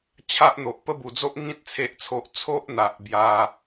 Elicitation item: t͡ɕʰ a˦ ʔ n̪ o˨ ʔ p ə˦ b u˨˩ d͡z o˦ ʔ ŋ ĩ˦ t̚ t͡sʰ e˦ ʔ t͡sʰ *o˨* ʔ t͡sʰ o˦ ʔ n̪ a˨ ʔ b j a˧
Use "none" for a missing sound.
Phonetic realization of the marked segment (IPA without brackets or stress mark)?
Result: o˦